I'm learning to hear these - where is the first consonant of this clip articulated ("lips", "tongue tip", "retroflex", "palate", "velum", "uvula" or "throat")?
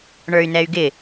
retroflex